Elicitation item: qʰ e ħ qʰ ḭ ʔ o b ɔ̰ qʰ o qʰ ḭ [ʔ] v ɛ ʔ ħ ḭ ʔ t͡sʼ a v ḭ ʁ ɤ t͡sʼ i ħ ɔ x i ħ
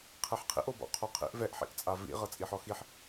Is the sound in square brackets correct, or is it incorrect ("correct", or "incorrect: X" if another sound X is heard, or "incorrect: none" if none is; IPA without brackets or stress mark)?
correct